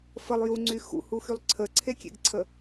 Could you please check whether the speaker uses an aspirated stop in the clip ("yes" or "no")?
yes